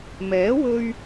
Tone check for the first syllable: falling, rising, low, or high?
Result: rising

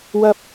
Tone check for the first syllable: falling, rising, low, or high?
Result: high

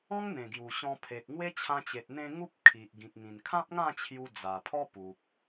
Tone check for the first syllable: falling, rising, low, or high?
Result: high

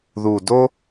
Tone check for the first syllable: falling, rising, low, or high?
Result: low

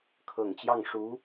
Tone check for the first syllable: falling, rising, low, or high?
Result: low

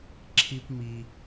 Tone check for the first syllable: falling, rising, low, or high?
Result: high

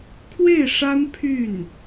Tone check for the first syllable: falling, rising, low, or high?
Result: falling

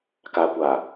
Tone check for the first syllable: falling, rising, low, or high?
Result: low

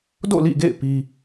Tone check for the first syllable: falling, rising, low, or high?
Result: falling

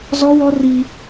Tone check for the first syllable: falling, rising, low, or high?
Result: high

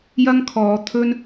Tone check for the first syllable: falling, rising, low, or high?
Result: high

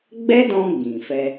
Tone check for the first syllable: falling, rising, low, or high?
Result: high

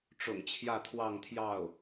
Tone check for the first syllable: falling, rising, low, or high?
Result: low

